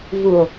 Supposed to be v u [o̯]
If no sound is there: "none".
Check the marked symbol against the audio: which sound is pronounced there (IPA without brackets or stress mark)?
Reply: o̯